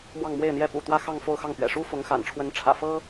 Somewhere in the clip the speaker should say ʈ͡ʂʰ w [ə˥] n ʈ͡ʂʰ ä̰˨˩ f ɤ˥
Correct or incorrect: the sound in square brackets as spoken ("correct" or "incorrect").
incorrect